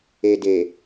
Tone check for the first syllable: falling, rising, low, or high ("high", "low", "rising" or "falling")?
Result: low